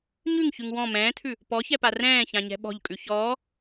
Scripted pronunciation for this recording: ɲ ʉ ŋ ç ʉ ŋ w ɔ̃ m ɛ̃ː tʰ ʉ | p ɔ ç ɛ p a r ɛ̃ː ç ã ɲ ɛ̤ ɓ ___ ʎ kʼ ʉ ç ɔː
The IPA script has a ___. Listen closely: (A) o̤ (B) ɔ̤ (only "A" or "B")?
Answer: B